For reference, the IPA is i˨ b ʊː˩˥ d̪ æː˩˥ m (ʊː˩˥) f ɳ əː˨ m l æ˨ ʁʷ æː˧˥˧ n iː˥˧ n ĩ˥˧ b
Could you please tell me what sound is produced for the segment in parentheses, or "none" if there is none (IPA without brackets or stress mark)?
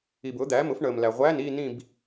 ʊ˩˥